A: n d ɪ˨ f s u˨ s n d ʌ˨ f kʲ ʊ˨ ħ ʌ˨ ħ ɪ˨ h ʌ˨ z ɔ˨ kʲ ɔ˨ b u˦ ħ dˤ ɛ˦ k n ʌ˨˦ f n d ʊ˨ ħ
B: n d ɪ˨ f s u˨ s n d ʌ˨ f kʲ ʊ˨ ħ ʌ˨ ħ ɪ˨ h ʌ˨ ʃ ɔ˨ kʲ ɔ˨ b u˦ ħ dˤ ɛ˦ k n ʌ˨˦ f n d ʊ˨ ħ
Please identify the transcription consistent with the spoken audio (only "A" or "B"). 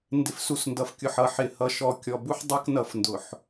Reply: B